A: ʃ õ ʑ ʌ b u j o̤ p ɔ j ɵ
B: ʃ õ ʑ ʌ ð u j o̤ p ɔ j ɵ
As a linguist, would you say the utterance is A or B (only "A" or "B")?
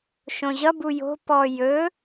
A